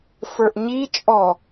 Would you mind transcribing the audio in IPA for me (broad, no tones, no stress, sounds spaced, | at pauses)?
f ə˞ ʔ ɲ i t͡ʃʼ ɔ